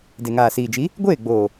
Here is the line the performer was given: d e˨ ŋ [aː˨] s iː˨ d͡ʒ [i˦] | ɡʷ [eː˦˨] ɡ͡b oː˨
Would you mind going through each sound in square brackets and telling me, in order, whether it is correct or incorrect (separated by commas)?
correct, incorrect, correct